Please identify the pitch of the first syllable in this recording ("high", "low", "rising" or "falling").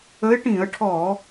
rising